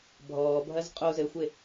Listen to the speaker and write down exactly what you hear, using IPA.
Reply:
bʱ ɔː bʱ ɐ z qʼ o z ɘ xʷ e

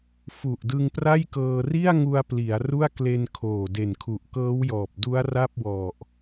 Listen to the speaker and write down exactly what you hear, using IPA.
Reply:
f u˨˩ ʔ d ɯ˧ ŋ p r a˥˩ j k ɤː˧ r i˥˩ a̯ ŋ u˧ a̯ p l i˩˦ a̯ r u˥˩ a̯ k l e˧ n kʰ oː˨˩ d e˨˩ n kʰ u˨˩ ʔ k ɤː˦˥ w j ɔː˨˩ p̚ d u˦˥ a̯ r a˥˩ p̚ w ɔ˨˩ ʔ

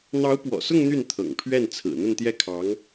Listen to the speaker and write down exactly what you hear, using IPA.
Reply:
n̪ ɑ˧˥ ʊ̯ p w ɔ̰˨˩ s ʊ˥˧ ŋ n̪ y˥˩ n t̪ʰ ɤ̰˨˩ ŋ pʰ ɥ ɛ˥˩ n t͡sʰ ɹ̩˨˩ n̪ ə˥˧ n t̪ j ɛ˥˩ kʰ ɑ˧˥ ŋ

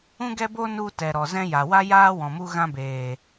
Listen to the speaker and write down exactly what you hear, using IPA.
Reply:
ũ˦ ɡ ɛ˦ b o˦ n u˧ t ɛ˨ ɾ ɔ˨ z ɛ̃˧ j a˨ w a˦ j aː˦ w ɔ̃˨ m u˦ ɣ ã˧ b eː˨

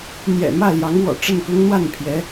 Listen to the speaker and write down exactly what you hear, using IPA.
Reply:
n̪ j ɛ̰˨˩ m ä˥˩ l j ɑ˧˥ ŋ w ɔ̰˨˩ ʈ͡ʂ ə˥˩ n k ʊ˥ ŋ n̪ w a˥˩ n pʰ j ɛ˧˥

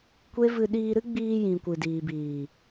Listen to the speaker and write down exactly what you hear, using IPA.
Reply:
kʷ e˦ v ɨ˧ ɗ iː˧ ɾ ɨ˦ ɡ͡b iː˧ j ĩ˨ kʷ ɨ˨ d iː˨ b iː˨

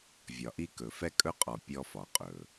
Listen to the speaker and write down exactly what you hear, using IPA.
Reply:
vʲ ɒ˨ ʔ i˦ k ɵ˨ f ɛ˦ kʼ ɵ˦ qʼ ɔ˨ pʲ ɔ˦ f ɒ˨ qʼ ɵ˨

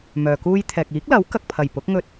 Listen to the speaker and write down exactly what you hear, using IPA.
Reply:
m œː˨ k uː˥ j t̪ʰ ɛː˨ k̚ iː˨˥ k̚ l ɐ˨˥ w k ɐ˨ k̚ pʰ ɐ˨˩ j p ʊ˨˥ k̚ ŋ ɵ˧ t̚

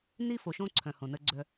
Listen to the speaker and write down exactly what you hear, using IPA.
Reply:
n i˦ f o˨ ʃ õ˦ ǀʰ œ̃˨ h õ˨ n ə˦ ɡ͡ǀ œ˦

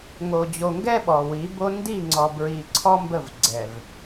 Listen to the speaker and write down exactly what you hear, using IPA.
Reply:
ŋ o˨ d͡ʑ o˨ ŋ ɡ ɛ˦ ɓ ɔ˨ w i˨˦ b o˦ n d i˦˨ ŋ͡ǀ ɔ˨ b ɹ i˨ ǀʰ ɔ˦ m b ə˦˨ v ɡ͡ǀ ɛ˨ v

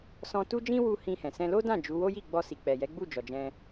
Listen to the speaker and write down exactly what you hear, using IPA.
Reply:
s ɔ̃˧ t u˦ d͡ʒ ĩ˦ w u˦ h ĩ˧ h ɛ̃˨ s ɛ̃˧ l o˦ d ã˦˨ d͡ʒ u˨˦ w o˦ j i˦˨ ɡ͡b ɔ˧ s i˨ k͡p ɛ˨ j ɛ˨˦ ɡ͡b u˦˨ d͡ʒ ɔ˨ d͡ʒ ɛ̃˧

